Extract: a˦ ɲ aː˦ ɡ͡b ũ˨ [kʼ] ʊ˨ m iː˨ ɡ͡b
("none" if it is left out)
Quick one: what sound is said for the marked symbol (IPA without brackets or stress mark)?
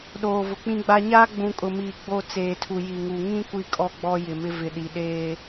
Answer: kʼ